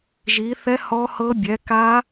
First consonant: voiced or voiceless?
voiced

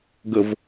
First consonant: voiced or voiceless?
voiced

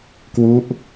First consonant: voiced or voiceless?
voiceless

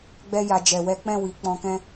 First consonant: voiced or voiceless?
voiced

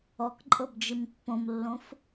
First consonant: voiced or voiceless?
voiceless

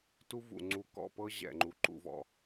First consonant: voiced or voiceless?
voiceless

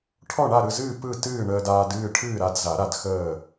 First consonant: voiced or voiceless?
voiceless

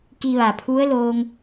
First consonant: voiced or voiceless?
voiceless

